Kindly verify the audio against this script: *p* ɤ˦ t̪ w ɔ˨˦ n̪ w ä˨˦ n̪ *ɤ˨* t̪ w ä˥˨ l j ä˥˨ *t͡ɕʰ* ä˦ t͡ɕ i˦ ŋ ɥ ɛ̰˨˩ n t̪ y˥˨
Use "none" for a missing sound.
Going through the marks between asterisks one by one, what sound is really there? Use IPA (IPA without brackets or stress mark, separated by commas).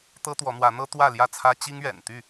t̪, ɤ˦, t͡sʰ